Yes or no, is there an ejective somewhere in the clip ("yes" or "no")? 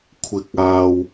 no